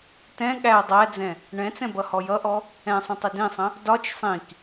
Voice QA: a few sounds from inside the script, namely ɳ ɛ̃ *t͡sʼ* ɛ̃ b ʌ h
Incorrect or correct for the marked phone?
incorrect: t͡s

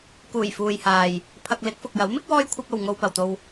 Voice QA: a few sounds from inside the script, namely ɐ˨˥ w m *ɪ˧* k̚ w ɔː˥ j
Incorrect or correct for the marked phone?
incorrect: ɪ˥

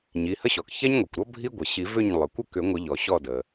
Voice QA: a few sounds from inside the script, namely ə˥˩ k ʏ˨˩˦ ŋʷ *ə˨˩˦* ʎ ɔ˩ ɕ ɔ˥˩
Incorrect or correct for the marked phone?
correct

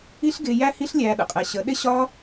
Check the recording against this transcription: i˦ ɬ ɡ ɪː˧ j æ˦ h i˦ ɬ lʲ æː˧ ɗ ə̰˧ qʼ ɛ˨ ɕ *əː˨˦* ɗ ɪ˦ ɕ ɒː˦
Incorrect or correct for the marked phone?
incorrect: ə˨˦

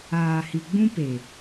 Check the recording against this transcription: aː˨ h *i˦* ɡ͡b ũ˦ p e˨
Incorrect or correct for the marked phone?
incorrect: i˨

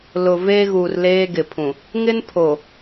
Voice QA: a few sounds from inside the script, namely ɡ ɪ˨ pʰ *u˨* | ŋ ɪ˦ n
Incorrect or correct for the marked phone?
incorrect: ũ˨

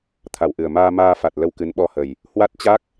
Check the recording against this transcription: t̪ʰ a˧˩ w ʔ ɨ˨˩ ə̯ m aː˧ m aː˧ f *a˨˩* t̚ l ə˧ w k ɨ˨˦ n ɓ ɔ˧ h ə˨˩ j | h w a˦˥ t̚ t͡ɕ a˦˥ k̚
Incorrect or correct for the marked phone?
correct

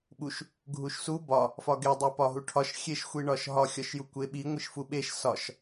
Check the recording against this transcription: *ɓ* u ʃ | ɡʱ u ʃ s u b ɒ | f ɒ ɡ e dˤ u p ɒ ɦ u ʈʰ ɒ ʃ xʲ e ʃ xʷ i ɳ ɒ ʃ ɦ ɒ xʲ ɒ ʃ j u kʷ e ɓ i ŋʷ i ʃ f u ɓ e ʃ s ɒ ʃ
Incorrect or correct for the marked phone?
correct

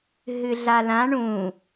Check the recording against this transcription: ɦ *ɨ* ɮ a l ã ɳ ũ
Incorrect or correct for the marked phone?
correct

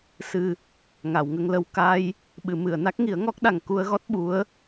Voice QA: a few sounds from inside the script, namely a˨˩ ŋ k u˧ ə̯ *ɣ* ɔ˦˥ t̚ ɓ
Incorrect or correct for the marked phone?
correct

